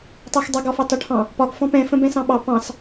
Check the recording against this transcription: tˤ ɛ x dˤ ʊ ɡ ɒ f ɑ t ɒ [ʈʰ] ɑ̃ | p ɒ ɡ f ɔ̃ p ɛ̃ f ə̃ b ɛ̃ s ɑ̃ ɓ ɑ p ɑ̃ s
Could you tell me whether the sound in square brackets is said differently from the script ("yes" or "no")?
no